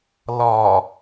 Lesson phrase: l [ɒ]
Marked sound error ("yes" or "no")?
no